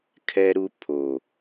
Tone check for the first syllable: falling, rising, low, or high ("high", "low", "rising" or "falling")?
high